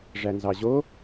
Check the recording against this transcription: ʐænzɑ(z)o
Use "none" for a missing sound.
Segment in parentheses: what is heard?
ʑ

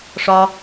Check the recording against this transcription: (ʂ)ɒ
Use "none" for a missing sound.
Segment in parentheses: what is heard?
ʂ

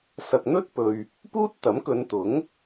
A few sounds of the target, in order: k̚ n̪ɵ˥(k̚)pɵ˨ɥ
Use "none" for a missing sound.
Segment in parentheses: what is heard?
t̚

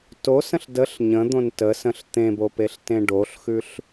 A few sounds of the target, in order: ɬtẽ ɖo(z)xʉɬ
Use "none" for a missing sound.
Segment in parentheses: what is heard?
ɬ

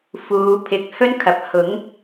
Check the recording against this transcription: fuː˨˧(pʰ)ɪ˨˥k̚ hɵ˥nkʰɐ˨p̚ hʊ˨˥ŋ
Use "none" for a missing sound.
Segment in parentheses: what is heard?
pʰ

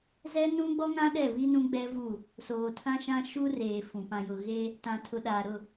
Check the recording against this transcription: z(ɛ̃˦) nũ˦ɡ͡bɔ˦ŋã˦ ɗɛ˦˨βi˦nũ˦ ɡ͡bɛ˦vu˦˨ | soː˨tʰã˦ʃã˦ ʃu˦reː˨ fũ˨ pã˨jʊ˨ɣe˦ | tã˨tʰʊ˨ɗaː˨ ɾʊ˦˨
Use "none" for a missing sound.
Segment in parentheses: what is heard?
ɛ˦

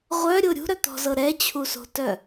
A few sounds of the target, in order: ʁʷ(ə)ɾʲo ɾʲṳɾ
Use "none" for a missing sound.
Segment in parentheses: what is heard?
œ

